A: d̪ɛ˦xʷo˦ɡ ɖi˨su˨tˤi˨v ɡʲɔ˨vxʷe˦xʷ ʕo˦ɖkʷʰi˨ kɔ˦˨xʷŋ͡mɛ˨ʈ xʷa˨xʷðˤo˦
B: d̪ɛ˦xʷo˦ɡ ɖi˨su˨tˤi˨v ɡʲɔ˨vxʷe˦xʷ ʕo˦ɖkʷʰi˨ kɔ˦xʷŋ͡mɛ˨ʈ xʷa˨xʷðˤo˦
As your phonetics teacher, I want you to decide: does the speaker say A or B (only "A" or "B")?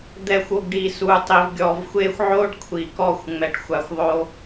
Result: A